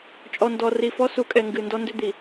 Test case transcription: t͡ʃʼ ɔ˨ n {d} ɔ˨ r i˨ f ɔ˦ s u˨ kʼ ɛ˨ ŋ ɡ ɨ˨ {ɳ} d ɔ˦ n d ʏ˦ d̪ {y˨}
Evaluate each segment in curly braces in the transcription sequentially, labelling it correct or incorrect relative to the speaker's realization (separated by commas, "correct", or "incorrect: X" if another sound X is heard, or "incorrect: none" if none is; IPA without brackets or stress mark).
correct, incorrect: n, incorrect: i˨